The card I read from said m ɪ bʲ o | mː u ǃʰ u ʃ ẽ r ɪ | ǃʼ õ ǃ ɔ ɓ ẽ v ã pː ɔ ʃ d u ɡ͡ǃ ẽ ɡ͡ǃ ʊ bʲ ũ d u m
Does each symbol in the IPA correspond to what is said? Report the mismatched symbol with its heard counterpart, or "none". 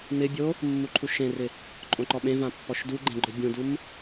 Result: none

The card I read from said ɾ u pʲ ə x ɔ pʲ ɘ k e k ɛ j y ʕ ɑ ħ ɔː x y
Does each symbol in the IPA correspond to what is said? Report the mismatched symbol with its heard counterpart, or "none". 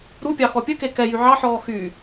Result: ə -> ɑ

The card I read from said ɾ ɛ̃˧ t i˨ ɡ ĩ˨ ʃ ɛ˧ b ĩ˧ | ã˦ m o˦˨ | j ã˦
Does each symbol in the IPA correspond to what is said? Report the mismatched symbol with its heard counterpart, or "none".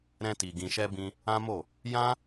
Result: none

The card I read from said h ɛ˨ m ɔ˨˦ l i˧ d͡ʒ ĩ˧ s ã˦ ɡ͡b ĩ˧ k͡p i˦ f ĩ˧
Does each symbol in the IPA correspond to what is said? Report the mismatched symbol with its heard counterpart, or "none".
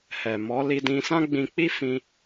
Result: d͡ʒ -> d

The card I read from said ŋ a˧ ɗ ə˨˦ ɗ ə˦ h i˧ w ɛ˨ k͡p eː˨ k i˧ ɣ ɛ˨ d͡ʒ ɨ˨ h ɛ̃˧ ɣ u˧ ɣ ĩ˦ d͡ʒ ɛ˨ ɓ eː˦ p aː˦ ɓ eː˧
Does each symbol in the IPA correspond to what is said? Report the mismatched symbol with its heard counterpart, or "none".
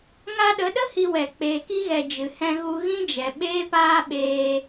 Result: none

